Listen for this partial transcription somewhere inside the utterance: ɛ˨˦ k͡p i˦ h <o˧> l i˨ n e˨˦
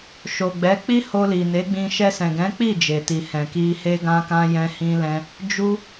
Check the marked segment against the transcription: correct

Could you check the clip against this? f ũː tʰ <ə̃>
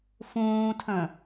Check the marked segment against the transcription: correct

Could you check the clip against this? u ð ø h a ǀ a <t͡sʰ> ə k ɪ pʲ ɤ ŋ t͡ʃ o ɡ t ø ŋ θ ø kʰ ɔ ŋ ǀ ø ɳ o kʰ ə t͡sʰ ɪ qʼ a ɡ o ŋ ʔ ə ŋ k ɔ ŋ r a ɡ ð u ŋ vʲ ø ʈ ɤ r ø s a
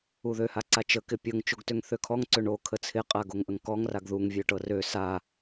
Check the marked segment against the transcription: incorrect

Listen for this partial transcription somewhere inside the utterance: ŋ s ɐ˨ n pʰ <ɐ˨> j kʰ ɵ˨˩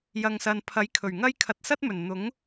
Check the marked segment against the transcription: incorrect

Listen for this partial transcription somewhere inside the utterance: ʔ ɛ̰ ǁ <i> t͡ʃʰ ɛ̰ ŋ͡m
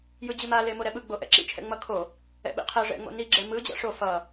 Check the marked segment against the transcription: incorrect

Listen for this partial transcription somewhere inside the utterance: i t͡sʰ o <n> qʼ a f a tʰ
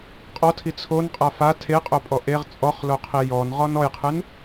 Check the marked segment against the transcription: correct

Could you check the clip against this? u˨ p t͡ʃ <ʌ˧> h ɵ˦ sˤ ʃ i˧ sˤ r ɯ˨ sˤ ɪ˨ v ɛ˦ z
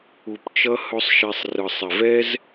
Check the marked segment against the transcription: correct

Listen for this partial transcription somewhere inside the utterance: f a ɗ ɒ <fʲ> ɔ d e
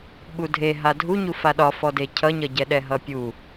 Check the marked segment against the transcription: incorrect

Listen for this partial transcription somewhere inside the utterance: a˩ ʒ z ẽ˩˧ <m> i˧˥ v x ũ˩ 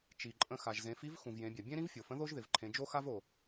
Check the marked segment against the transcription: incorrect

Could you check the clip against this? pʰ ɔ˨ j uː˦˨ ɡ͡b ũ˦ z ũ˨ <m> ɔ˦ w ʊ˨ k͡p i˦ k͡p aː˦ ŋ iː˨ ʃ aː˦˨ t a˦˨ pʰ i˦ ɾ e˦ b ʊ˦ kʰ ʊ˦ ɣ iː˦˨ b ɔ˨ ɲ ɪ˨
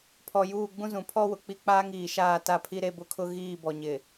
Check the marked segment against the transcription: incorrect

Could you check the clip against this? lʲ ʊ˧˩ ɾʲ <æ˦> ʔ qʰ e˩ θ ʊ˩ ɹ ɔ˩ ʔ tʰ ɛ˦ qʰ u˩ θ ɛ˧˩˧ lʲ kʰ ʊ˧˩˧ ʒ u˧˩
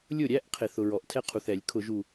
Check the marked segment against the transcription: correct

